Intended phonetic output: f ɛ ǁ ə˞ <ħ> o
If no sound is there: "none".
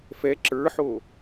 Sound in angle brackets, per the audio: ħ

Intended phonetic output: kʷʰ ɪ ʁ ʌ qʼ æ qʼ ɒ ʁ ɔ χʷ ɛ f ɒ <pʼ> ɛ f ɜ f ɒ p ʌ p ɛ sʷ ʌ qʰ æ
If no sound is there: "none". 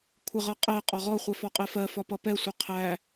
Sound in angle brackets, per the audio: qʼ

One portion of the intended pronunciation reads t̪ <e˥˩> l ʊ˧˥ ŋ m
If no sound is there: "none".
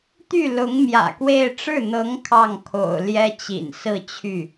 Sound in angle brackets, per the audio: y˥˩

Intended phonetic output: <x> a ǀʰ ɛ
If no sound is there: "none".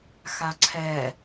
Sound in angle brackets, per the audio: x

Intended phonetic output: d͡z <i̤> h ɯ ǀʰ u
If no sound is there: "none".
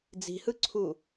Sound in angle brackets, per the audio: i̤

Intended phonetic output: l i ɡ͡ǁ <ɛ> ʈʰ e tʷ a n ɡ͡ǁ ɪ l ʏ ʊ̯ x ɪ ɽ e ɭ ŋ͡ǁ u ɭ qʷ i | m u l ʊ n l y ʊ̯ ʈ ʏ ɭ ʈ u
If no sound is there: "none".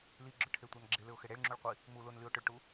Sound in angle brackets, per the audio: ʏ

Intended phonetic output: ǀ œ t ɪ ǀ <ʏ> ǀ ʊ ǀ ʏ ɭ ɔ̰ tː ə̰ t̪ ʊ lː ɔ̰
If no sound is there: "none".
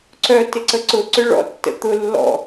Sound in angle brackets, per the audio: ə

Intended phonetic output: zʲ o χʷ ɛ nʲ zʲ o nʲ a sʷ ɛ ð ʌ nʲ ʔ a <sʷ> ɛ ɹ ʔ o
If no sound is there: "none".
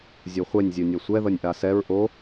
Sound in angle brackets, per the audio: s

